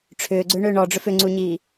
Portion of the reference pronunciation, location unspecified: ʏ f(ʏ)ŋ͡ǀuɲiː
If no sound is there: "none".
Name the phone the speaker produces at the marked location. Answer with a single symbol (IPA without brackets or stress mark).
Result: ʏ